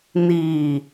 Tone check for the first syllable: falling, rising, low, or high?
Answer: low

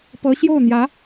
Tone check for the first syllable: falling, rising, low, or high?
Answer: rising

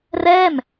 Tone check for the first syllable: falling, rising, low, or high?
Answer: falling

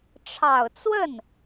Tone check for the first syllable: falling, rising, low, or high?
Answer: low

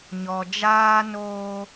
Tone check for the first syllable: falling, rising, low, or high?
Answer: low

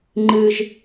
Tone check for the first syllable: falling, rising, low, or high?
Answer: high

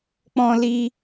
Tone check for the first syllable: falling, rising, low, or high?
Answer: high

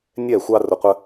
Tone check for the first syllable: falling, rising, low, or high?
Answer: falling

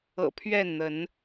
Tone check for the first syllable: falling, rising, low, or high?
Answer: low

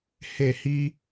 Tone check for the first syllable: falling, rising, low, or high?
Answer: falling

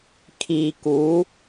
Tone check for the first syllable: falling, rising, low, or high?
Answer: low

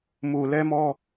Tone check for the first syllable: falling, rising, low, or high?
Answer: low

